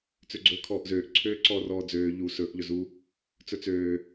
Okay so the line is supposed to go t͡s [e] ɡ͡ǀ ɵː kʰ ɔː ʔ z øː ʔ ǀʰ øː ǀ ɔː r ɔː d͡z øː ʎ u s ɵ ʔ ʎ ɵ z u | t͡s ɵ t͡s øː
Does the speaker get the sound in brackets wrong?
yes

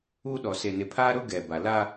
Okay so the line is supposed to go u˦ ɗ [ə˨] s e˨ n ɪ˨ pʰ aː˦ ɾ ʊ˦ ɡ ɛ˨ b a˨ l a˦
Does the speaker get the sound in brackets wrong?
yes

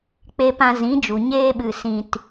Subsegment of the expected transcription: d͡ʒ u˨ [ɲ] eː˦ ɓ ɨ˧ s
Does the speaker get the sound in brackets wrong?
no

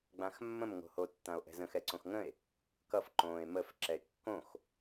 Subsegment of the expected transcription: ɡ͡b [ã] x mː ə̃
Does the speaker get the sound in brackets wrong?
no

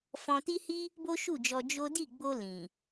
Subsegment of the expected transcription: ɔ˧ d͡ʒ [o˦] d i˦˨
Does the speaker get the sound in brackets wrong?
no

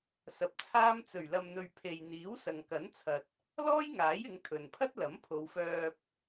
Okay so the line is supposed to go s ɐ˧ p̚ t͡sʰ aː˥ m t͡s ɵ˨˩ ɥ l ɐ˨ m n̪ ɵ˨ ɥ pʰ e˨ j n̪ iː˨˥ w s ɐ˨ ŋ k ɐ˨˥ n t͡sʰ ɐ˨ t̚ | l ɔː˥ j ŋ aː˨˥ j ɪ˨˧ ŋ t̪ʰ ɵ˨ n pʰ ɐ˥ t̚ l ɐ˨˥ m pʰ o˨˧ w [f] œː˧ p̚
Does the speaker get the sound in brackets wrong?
no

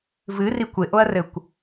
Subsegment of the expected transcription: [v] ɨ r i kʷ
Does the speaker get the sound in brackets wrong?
no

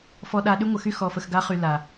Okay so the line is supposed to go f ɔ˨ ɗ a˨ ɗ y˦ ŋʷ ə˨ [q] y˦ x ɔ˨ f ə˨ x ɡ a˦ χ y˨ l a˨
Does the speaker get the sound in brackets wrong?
yes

